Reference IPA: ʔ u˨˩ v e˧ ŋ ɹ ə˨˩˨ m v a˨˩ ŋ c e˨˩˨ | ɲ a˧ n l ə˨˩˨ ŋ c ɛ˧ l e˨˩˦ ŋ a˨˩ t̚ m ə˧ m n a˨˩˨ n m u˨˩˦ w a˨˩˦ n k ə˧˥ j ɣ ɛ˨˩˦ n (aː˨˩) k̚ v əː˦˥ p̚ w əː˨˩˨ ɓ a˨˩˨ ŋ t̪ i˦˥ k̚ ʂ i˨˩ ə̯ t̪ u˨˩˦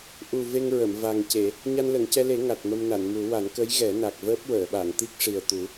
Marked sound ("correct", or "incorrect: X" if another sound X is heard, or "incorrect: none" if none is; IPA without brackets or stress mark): incorrect: a˨˩